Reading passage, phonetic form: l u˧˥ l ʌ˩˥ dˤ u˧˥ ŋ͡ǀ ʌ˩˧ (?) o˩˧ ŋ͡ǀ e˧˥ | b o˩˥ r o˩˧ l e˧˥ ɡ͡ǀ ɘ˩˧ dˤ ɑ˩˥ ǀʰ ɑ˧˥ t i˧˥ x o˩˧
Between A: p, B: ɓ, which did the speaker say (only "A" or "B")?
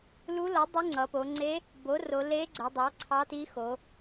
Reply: A